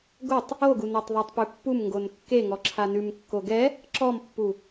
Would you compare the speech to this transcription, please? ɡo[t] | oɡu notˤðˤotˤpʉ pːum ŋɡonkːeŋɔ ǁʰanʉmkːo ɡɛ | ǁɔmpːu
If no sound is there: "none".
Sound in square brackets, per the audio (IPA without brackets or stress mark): tˤ